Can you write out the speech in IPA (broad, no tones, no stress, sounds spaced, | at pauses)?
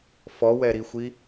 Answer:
f ɔ w ɛ ɾ i xʷ i